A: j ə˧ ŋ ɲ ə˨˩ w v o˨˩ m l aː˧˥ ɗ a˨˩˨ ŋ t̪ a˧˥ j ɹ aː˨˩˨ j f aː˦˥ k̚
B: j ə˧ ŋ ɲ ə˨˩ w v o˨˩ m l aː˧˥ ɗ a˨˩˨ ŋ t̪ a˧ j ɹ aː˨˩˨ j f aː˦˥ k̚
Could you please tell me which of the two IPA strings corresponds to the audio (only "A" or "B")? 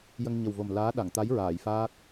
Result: A